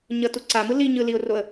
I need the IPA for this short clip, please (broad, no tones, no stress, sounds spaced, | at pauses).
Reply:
ɲ ʌ t u ǀ a m ɯ l i ɲ ɯ l i ʊ̯ r o ə̯